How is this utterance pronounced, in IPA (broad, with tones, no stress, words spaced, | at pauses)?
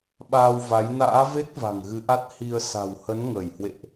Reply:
ɓaː˧wva˨˦j na̰ː˧˥ ve˦˥k̚ va̤˨˩ŋɣɨ˨˦ʔa˦˥t̚ hi˧ə̯ sa̤˨˩whə˨˦n ŋəː˧˩jhwḛ˧˨ʔ